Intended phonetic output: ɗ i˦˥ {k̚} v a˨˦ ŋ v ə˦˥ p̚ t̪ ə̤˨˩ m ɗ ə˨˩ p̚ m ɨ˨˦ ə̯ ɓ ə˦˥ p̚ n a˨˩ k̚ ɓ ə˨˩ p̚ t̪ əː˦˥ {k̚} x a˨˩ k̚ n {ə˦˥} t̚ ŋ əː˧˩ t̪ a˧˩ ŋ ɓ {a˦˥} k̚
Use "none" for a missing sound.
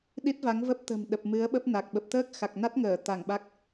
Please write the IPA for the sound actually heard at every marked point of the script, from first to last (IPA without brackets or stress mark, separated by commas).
t̚, k̚, a˦˥, a˦˥